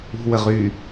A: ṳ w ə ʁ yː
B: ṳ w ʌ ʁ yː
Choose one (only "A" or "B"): A